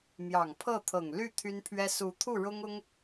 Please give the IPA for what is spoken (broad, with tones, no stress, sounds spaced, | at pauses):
m j ɑ˨˩ ŋ pʰ ɤ˥˩ t̪ʰ ɤ˨˩ ŋ l y˥˩ t̪ʰ y˥ n pʰ ɥ ɛ˥ s u˧˥ t̪ʰ u˥˩ ɻ ʊ˥ ŋ ʊ˥ ŋ